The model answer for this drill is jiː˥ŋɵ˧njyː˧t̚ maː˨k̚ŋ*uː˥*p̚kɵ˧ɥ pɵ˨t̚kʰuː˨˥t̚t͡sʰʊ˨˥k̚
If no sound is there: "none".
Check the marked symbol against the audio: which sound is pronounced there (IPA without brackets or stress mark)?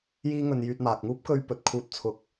uː˥